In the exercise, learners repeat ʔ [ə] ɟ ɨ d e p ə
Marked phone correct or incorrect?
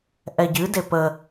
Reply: incorrect